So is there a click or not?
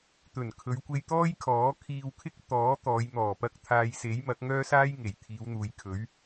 no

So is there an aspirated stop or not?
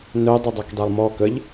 no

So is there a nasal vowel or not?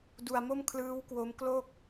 no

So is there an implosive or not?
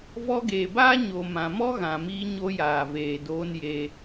no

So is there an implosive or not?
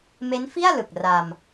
no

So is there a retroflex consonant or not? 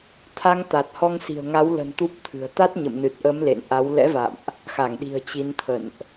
no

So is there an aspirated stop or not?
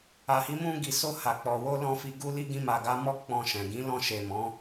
no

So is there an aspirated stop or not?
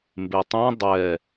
no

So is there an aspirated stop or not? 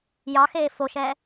no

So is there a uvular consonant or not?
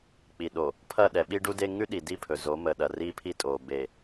no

